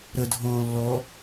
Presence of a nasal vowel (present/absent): present